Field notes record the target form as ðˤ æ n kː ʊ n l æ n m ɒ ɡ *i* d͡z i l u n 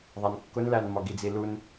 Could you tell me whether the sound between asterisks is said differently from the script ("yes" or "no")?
no